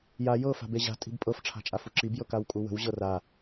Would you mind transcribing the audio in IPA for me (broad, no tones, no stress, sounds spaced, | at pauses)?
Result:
j a j ɤ f a̤ b e ʑ a̤ tʼ i̤ b pʼ ɤ f ʈ͡ʂʰ a̤ t͡ʃʼ a f u ǁ i b j ɤ k a w kʼ u w ə̤ w ʑ ɤ r a